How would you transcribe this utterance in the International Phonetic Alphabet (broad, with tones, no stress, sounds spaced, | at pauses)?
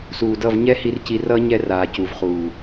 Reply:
s uː˨ d ʌ˦˨ v ɲ ɛ˦ h i˧ r c i˧ r ʌ˦ ɲ ɛ˧ r aː˨ c u˨ v χ uː˨